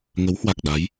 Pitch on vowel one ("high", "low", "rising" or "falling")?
rising